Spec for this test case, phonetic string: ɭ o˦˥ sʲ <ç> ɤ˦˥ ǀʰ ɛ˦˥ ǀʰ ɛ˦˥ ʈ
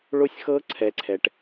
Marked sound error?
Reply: yes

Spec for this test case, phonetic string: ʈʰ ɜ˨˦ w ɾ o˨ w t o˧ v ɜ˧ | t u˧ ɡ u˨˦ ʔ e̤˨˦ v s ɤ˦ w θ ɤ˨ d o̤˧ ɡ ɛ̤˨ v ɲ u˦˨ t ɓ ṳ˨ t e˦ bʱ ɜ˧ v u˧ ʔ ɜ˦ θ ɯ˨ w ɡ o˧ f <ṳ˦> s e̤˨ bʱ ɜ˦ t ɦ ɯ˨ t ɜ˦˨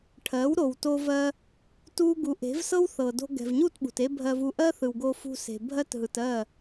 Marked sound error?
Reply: yes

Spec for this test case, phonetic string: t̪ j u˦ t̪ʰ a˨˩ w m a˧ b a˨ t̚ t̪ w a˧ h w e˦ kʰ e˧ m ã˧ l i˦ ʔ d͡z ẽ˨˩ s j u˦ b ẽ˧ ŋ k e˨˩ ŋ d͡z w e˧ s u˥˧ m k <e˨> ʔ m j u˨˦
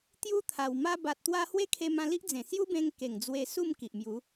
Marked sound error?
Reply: yes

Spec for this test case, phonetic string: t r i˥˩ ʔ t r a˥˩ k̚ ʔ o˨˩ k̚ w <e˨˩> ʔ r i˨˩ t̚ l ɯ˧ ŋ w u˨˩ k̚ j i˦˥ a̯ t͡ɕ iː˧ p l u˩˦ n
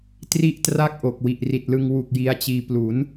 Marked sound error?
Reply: yes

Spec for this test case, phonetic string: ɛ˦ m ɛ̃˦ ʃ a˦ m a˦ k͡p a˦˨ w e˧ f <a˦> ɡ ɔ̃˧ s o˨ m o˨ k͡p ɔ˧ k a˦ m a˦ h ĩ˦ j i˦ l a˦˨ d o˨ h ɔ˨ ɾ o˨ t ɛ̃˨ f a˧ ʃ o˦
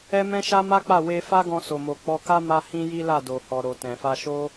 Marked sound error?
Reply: no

